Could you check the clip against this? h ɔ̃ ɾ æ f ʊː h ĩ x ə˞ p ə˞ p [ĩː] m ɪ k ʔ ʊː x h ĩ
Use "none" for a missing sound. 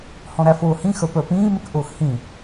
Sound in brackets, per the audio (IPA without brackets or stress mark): ĩː